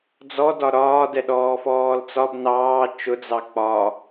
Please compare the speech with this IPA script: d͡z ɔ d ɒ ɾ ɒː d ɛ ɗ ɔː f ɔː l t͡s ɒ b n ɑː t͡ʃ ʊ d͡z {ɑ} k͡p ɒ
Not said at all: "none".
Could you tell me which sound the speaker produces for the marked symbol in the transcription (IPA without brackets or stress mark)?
ɑ